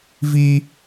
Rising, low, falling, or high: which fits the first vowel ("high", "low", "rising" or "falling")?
high